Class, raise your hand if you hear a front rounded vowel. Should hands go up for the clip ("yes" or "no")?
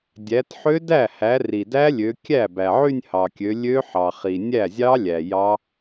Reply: yes